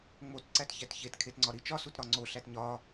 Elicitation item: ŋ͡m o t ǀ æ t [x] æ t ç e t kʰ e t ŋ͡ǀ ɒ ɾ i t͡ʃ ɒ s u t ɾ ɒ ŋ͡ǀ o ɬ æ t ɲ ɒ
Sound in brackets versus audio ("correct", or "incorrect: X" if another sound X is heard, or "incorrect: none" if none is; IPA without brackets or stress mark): incorrect: ç